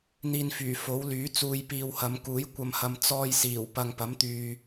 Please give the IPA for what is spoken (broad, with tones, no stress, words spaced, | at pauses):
n̪iː˧nfyː˨˩ fo˨˥wlyː˨˥ t͡suː˧jpiː˧whɐ˨˧m kuː˨˥jkʷɐ˧mhɐ˧m t͡sɔː˧jsiː˨˩w pɐ˧ŋpɐ˨˥mt̪yː˧